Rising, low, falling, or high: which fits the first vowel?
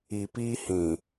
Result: low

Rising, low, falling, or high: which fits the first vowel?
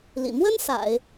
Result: low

